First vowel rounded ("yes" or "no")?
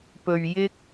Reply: yes